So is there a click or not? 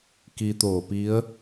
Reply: no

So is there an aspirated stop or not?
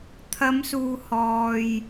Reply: yes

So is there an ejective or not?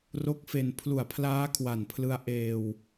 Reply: no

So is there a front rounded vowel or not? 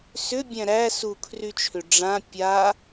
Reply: yes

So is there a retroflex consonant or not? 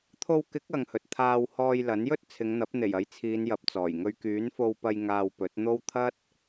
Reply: no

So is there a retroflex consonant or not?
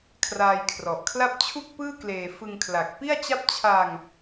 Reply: no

